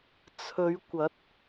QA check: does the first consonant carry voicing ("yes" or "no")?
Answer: no